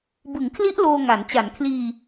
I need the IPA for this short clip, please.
b ɯ˩˦ ŋ kʰ l i˦˥ ʔ l oː˧ ŋ a˩˦ n t͡ɕ a˩˦ n kʰ l iː˧

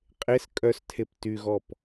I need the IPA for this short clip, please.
qʼ e s kʼ œ s tʰ e p t y ɣ ɔ p

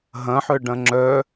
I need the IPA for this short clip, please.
ɦ ɐ̃ ħ œ ɖ ɐ̃ ŋ͡ǁ œ

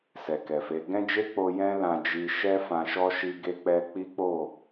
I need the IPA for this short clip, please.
s ɛ˨ k ɛ˨ f e˨˦ ɡ ɛ̃˦ d͡ʒ e˦ k͡p o˧ j ɛ̃˦ l ã˧ d͡ʒ i˧ ʃ ɛ˦ f ã˧ ʃ ɔ˦ ʃ i˧ ɡ e˧ k͡p ɛ˧ k͡p i˦ k͡p o˦˨

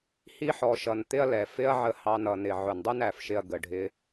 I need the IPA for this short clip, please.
h i˧ ħ ɔ˨ ʃ ʌ˨ n t̪ ɪ˧ ɐ̯ l ɛ˨ f ɪ˦ ɐ̯ ʕ ə˧ h ɑ˧ n ʌ˨ n ɪ˨ ʕ ʊ˨ n dˤ u˦ n æ˨ f ʃ ɪ˧ ɐ̯ ɡ ə˨ ɖʱ ɪ˧

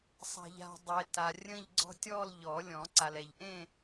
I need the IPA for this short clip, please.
sˤ a̤˨ ʎ a̤˨ dˤ e˨ t a˨ rʲ ə̃˥˧ ʎ ɡ͡ǀ ɔ̤˥˧ tʲ ɔ˥˧ l ʎ ɔ˨˩˦ lʲ ɔ̃˨˩˦ ǀ a˨ l ɛ˨ ʎ ʔ ẽ˥˧

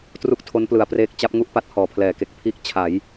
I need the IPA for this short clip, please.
t r u˦˥ k̚ tʰ o˦˥ n p l ɯ˨˩ a̯ p r eː˦˥ k̚ t͡ɕ a˦˥ p̚ ŋ u˦˥ ʔ p a˦˥ t̚ h ɔː˨˩ pʰ l ɛː˩˦ k e˨˩ k̚ pʰ iː˥˩ k̚ t͡ɕʰ a˩˦ j

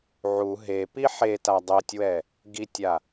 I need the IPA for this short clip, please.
ʕ u ɦ e p i ħ e t a dˤ ɛ tʲ w ɛ | ɡ i tʲ a

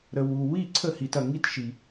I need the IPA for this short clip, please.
ɾ ə˧ w u˧ w i˥˨ ǀʰ ə˥˨ h i˧ t ɐ˧ ŋ i˥˨ t ʃ i˧

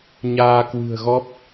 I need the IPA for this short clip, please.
ɲ aː˧ k w ɨ̤˨˩ ə̯ ɣ ɔ˦˥ p̚

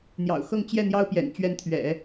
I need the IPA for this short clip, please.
n̪ j ɑ̰˨˩ ʊ̯ x ɤ˥˧ ŋ t͡ɕ j ɛ˥˩ n̪ j ɑ˥ ʊ̯ p j ɛ̰˨˩ n t͡ɕ ɥ ɛ˧˥ n t̪ʰ ɥ ɛ̰˨˩˦

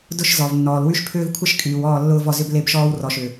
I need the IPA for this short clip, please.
d ʊ˦ ʃ z ɔ˨ v nː ɔː˨ l w y˦ ʃ pʰ ʏː˦ v kʷʰ ɪ˦ ʃ kʼ yː˨ w ɔː˦˨ lː ʊː˦ v ɔ˦˨ z ʏ˦ b l e˦ b ʃ ɔː˦ w r ɔ˨ ʃ ʏ˨

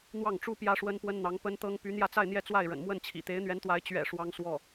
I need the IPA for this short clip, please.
n̪ w ɑ˥˩ ŋ ʈ͡ʂ u˥ p j ä˥ ʂ w ə˥ n p w ə˥ n n̪ ɑ˧˥ ŋ p ə˥ n t̪ ɤ˥ ŋ p y˧˥ n̪ j ä˥˧ t͡s a˥˧ ɪ̯ n̪ j ɛ˥˧ t͡s w a˥˩ ɪ̯ ɻ ə̰˨˩ n m w ə˥˩ n t͡ɕʰ ḭ˨˩ t̪ e˧˥ ɪ̯ n̪ ɥ ɛ˧˥ n t̪ w a˧˥ ɪ̯ t͡ɕ ɥ ɛ̰˨˩ ʂ w ɑ˥ ŋ s w ɔ˥˩

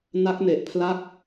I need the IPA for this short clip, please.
n a˦˥ k̚ n e˨˩ ʔ pʰ l a˥˩ k̚

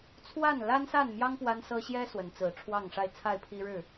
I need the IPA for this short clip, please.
t͡sʰ w a˥˨ n l a˦ n s a˥˨ n m j ɑ˦ ŋ p w a˦ n s ɤ˦ ɕ j ɛ˦ s w ə˨˦ n t͡s ɹ̩˨˩ ʈ͡ʂʰ w ɑ˥˨ ŋ ʂ a˥˨ ɪ̯ t͡sʰ a˥˨ ɪ̯ pʰ i˦ ɻ ɻ̩˥˨

